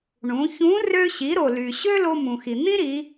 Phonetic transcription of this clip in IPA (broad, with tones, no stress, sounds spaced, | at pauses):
ɳ ũ˩˧ ç ũ˧˥ r ø˧ ɕ i˩˧ ɾ o˩ l y˩ ɕ ø˥ l o˧ m ũ˩ x i˩ n̪ ĩ˥ ɾ i˩˧